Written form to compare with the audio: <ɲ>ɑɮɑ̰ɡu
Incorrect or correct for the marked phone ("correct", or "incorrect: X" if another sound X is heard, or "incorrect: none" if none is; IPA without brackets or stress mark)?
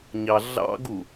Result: correct